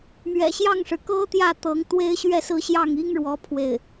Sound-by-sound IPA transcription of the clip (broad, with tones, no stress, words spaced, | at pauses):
mɥɛ̰˨˩ɕjɑ˥˩ŋʂɻ̩˩ kɤ˥t̪jä˥˩t̪ɤ˧˥ŋ t̪we˥ɪ̯ɕɥɛ˥˧sɹ̩˥˧ɕjɑ˥˩ŋ i˥ŋɻwɔ˧˥ pʰwe˥˩ɪ̯